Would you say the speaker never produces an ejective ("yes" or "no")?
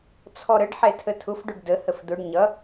yes